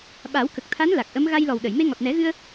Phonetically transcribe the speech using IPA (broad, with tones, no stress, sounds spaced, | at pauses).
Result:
ɓ a˨˩˦ w k ə˨˩ k̚ t̪ʰ a˧˥ n l a˨˩ k̚ ʔ ə˧˥ m ɣ a˧ j l ɔ˨˩ w ɗ ə˨˩˨ j m e˧ ŋ ɔ˨˩ t̚ n ɛ˨˩˦ ɣ ɨ˧ ə̯